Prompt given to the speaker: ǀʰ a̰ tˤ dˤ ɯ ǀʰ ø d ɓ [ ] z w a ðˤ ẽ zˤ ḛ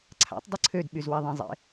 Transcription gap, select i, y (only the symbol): y